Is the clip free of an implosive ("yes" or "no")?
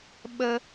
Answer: no